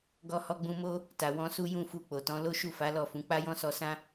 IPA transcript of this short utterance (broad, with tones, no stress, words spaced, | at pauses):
ɡɔ˧hɔ˧ɡ͡bũ˧mo˦ | ta˨wɔ̃˧su˦ jũ˦˨fu˧k͡po˨tɔ̃˨˦ lo˦ʃu˦˨fa˨˦ lɔ˦˨fũ˨˦ k͡pa˦jɔ̃˦sɔ˧sã˦